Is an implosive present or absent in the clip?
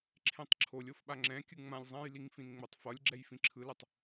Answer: present